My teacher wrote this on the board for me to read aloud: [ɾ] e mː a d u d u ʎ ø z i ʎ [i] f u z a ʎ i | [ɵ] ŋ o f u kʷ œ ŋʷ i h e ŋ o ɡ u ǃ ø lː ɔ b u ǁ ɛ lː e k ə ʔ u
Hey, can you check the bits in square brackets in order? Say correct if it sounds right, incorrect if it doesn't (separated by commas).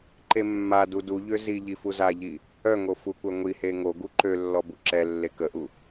incorrect, correct, incorrect